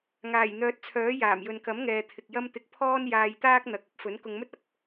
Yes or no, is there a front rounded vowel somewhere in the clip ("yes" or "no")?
yes